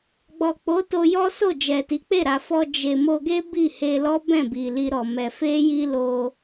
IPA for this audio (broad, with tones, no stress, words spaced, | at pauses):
ɡ͡bɔ˨k͡po˨˦to˧jɔ˦ so˦˨d͡ʒɛ˨ti˨˦k͡pe˦˨ ɾa˨fɔ˧ d͡ʒe˨ mo˧ɡe˦ bi˦˨he˧lɔ˦ bɛ̃˦˨bi˨li˧ ɾɔ˨mɛ˧ fe˦ ji˦lo˧